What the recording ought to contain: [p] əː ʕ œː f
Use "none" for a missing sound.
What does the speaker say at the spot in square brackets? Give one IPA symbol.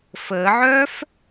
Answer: f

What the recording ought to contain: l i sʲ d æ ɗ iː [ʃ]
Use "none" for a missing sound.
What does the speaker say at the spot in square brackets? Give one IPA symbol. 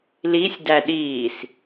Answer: s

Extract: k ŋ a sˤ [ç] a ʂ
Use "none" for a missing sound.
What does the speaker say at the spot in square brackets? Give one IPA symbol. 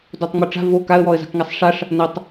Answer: ʂ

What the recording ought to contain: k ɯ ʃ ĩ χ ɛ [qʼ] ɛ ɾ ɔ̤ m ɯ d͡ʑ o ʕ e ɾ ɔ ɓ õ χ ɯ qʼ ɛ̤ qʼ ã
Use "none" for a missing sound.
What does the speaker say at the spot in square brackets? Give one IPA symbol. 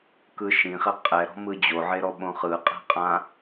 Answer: qʼ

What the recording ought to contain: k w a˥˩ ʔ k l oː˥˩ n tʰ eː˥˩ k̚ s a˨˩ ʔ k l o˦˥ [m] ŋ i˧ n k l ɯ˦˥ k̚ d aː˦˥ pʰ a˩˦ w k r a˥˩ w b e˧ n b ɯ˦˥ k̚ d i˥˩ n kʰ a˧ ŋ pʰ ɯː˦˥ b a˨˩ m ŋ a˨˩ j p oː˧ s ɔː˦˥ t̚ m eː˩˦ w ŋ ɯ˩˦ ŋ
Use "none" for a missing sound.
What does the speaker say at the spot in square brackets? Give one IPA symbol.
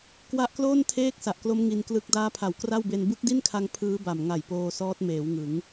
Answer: m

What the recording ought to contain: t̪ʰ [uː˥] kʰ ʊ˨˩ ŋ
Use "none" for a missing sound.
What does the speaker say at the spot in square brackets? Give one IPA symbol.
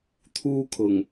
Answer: uː˥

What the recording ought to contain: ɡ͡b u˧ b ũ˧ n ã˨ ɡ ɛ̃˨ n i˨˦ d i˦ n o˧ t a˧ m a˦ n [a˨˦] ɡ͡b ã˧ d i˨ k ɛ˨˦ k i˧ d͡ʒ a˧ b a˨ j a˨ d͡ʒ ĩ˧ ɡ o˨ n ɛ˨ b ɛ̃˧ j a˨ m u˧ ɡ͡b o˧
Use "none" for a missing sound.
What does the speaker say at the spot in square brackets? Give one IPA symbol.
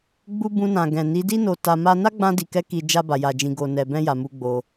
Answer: a˦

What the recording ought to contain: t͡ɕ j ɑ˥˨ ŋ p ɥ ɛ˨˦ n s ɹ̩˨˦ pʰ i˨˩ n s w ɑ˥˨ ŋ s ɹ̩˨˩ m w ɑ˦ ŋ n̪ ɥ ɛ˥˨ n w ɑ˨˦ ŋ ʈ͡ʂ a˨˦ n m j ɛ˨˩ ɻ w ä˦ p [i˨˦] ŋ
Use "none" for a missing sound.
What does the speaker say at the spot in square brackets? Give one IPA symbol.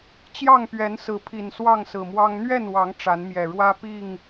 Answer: i˥˨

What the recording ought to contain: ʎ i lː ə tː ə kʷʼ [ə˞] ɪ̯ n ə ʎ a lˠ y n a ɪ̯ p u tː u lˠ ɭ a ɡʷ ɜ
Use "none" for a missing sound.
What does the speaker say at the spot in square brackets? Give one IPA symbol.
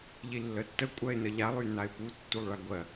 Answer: ɜ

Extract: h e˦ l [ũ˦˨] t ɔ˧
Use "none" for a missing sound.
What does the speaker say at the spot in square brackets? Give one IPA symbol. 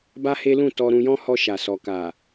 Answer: ũ˦˨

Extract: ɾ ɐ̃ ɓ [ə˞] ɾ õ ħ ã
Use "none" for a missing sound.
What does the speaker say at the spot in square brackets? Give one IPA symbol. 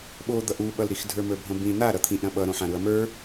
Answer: ʌ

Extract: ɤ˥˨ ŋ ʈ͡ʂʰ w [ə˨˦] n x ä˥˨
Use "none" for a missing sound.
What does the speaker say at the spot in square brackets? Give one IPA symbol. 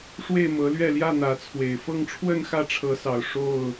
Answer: ə˥˨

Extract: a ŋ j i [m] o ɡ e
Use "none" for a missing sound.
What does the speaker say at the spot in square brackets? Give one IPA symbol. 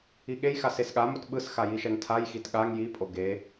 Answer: pʼ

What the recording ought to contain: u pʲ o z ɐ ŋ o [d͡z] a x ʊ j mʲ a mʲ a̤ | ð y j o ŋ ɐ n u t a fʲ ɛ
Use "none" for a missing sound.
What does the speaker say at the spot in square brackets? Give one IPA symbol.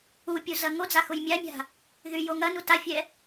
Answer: d͡z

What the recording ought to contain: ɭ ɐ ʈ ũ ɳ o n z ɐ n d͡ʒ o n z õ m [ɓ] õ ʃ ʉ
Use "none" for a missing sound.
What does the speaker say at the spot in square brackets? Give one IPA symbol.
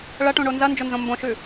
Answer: b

